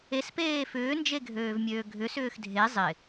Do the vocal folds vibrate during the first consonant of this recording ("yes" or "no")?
no